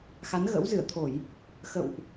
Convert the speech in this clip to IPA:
xa˨˦nɣə̰˧˥wzɨ˧˩ə̯t̪ʰo˧˩˨j | xə̰˧˨wʔ

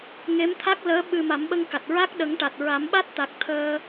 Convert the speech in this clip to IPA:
ŋe˧˥mt̪ʰa˦˥k̚ləː˧˥ ɓɨ˧ ma˨˩˦mɓə˧ŋka˨˩t̚ɹa˦˥k̚ ɗə˨˩˦ŋʈa˨˩t̚ ɹa˨˩˦mɓa˦˥t̚t̪a˨˩k̚ t̪ʰəː˧

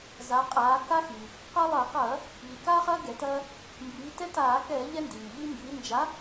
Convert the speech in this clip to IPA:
za˩˧qʼaː˩˧ ka˦xi˩ | qa˦ lˠɐː˧˩˧qɐː˧˩˧ | ʎi˩kaː˦χɐː˦ ɡɛ˩˧tɐː˦ | mbiː˩˧tɛ˦taː˧˩˧kɛː˧˩˧ ʎɛ˦ndiː˩ʎi˦ mbiː˩˧nd͡ʒa˨˥

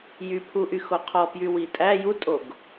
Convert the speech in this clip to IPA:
jypʰuʔyxo qʰɔpjy witʼæ jutʼoɡ

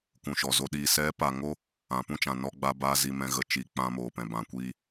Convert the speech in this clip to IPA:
kũ˨ʃɔ˨zo˧ ɗiː˨sɛ˨˦pa˨ŋo˧ | ã˨pũ˦t͡ʃã˨ nɔ˧ɡ͡ba˧baː˧ zi˧mɛ̃˧ɣə˧t͡ʃi˨˦ k͡pã˧moː˨pɛ̃˨ bã˨kʷiː˧

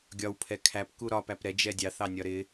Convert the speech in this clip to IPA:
ɡʲɒwpʰɛ kʰæpku ɾɒpæp ɾɛd͡ʒɛ dʲɑθɑnʲɒ ɾɪ

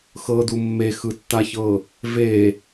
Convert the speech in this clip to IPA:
xɤdu mːexɯtːaçɤ | ve

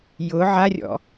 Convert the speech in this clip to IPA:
jʊ ʕarʲɔ̰

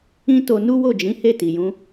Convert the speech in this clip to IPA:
ĩ˦to˧ nu˦wo˦˨d͡ʒĩ˨˦ he˦˨ti˨jũ˨˦

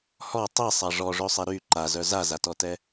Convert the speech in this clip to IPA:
hɔ tˤisˤa ʐɔʐøsˤɛ ɾy ǃazœ zazatɔtɛ

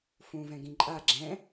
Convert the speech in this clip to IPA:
fũ vɛ̃ɡĩǃʼa ɡ͡ǁɛ̃

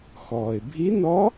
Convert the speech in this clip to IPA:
xɔː˩ɪ̯bʱi˧˥nɔ˧˥

